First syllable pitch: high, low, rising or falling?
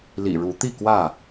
low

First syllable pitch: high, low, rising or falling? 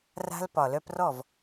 high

